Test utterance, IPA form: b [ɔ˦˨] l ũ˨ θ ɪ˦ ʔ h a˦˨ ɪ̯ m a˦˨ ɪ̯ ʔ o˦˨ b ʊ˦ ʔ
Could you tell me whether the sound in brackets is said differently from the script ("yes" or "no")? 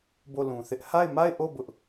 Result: yes